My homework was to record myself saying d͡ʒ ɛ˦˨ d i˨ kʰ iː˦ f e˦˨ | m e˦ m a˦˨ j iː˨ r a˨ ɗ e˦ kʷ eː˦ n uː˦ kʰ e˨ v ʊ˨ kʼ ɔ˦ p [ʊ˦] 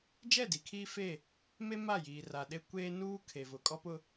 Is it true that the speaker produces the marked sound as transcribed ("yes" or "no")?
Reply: yes